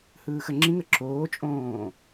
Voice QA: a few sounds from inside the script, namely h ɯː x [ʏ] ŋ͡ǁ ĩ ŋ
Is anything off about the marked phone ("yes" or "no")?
yes